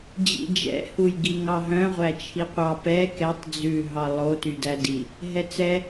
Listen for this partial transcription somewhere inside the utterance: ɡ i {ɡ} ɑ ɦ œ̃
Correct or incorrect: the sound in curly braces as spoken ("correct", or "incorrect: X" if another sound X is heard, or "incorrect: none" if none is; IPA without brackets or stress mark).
incorrect: ŋ